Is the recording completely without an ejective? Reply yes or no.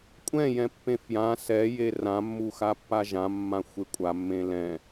no